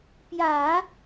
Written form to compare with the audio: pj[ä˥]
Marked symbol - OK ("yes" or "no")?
no